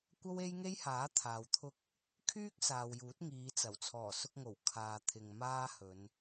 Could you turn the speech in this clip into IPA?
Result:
kʷ ɐ˥ w e˥ j ŋ e˥ j h aː˨˥ t̪ʰ aː˨ w t̪ʰ ʊ˥ k̚ | kʰ yː˥ k̚ s aː˨ w j uː˨˥ t̚ ŋ iː˨˧ t͡s ɐ˨˩ w t͡sʰ ɔː˨˩ s ʊ˧ k̚ ŋ o˨˩ w kʰ aː˨ t̪ʰ ɪ˨ ŋ m aː˥ h ɵ˨˧ n

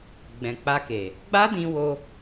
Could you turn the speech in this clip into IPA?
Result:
ɡ͡b ɛ̃˨ k͡p a˧ k e˨ | ɡ͡b a˦ d ĩ˧ w o˧

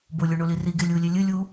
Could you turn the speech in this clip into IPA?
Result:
b o lʲ o ɳ o l i r i ɡ e lʲ u lʲ e lʲ ɨ lʲ u

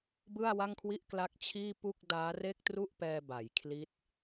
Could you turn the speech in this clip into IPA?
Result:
b ɯ˥˩ a̯ w a˥˩ ŋ kʰ w i˥˩ ʔ k l a˦˥ k̚ t͡ɕʰ iː˥˩ p u˥˩ k̚ d aː˦˥ r e˥˩ k̚ t r u˥˩ ʔ p ɛː˧ b a˩˦ j kʰ l i˦˥ t̚

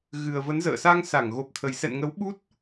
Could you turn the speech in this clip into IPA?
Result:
ɣ ɨ˨˩ ə̯ v ə˨˦ n z ə̰ː˧˨ s a˧ ŋ s a˧˩ ŋ ɣ o˨˩ p̚ t̪ʰ ə˨˩ j s ɛ̰˧˨ n ŋ ə˨˦ w ɓ u˦˥ t̚

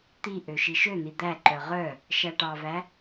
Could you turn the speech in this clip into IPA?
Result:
t̪ i ʔ ø ʃ i ʃ ø n̪ i d̪ æ ǃ œ ʁ œ | ʃ æ ʈ ɑ v æ

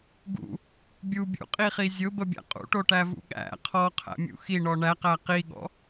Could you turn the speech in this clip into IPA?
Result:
ɡ ṵ | bʲ u bʲ ṵ qʼ i χ i zʲ ʊ b ə bʲ æ̰ qʼ ṵ ʈ o ʈ æ v ṵ ɠ æ̰ qʰ ɔ qʰ æ̰ mʲ ṵ x i ɳ ɔ ɳ æ q æ q i ɠ ɔ̰

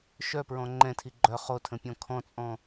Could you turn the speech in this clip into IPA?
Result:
ʃ œ p ɹ ɔ̃ ŋ͡ǃ ɛ̃ tʰ i ɡ͡ǃ œ χ o tʰ ə̃ pʲ ɔ̃ kʰ ɔ̃ t͡sʼ ɔ̃

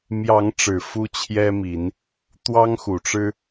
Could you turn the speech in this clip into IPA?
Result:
m j ɑ˨˦ ŋ ʈ͡ʂ ɻ̩˨˩ f u˦ t͡ɕʰ j ɛ˦ m i˨˦ n | t̪ w ɑ˦ ŋ x u˨˩ ʈ͡ʂ ɻ̩˦

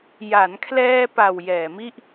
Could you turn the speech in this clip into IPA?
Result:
j a˩˦ n kʰ l ɛː˧ p a˨˩ w j ɛː˨˩ m i˥˩ ʔ

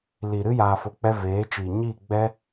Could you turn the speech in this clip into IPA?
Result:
l i˨ ɾ ɨ˦ j aː˧ f o˧ k͡p ɛ˦ v eː˨˦ t͡ʃ iː˨ ɲ iː˦˨ ɡ͡b ɛ˦

